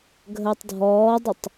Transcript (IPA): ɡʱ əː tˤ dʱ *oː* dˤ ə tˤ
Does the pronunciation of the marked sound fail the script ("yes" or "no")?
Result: yes